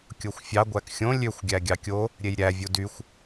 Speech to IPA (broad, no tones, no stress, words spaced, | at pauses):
kʲoxʷfʲɑ ɡʷækxʲõ lʲøxʷɡʲæ ɡʲɑkʲo | ɾʲejɾʲæ vʲudyxʷ